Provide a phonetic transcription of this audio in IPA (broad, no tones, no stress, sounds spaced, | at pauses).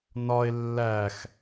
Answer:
n ɒ e̯ lː æ x